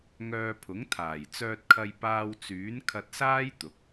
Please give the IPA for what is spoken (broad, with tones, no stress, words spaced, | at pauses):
ŋœː˧pʰʊ˨˥ŋt̪ʰaː˨˩j t͡sœː˧t̚kʰɐ˧j paː˧wt͡syː˨˥n kʰɐ˧t̚saː˥j t̪ʊ˨˥k̚